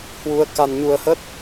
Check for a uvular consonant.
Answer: absent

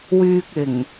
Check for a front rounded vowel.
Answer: present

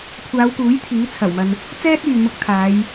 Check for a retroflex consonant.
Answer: absent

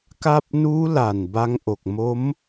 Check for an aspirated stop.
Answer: absent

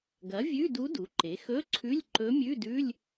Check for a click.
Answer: present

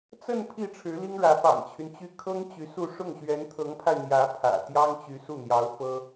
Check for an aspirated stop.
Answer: present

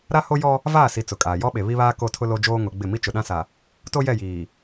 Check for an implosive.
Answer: present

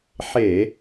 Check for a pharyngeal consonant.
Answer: present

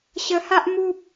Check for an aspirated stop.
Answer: absent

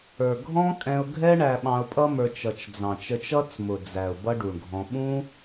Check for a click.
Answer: absent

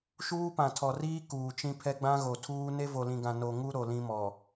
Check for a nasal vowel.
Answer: present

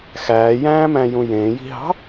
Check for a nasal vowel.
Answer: present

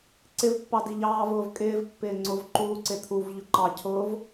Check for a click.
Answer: present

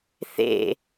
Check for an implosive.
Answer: absent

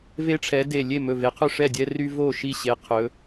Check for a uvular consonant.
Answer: present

